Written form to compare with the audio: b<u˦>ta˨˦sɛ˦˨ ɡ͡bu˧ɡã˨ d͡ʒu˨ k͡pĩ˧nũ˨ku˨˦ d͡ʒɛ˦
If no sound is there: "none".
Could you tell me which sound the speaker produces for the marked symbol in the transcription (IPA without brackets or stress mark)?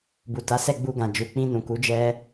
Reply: u˨